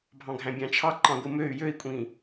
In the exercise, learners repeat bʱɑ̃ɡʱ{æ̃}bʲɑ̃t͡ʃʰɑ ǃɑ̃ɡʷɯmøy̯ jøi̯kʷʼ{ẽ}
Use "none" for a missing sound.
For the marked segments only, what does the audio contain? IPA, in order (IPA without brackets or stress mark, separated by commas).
æ̃, ĩ